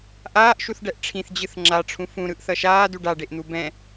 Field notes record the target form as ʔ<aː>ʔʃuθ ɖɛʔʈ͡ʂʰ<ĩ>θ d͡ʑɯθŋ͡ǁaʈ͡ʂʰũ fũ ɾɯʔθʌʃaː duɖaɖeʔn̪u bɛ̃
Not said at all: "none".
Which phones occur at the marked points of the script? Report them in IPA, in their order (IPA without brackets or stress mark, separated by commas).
aː, ĩ